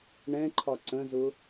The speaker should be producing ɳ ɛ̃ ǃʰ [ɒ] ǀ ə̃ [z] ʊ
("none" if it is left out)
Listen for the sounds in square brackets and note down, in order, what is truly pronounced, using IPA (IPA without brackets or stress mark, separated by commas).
ɒ, z